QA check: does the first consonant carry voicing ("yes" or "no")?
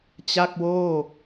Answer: no